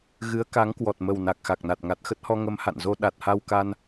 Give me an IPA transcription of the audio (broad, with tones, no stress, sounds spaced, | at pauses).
ɣ ɨ˨˦ ə̯ k a˨˦ ŋ k w ɔ˨˩ t̚ m ə˨˩ w n a˨˩ k̚ x a˨˩ k̚ n a˨˩ t̚ ŋ a˨˩ t̚ x ə˦˥ t̚ h ɔ˧ ŋ ə˧ m h a̰˧˨ n z o˧ ɗ a˨˩ t̚ h a˧ w k a˧ n